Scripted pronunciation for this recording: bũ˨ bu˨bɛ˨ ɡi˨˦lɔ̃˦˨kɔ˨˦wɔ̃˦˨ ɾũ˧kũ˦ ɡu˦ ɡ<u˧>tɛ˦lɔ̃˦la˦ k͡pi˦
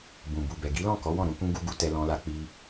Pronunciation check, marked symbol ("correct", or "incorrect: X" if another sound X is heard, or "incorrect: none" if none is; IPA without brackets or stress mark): correct